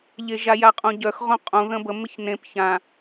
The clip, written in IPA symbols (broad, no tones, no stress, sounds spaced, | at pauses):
ʎ e ʒ a j a qʼ ũ ɟ œ x ʁ õ qʼ ũ ð ə̃ b ə m ɪ ç n ẽ p ç ã